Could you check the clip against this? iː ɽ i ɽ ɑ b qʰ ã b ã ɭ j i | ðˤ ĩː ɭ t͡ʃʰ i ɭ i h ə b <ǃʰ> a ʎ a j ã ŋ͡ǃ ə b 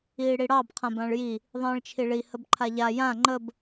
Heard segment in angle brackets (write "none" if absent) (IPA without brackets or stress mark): ǃʰ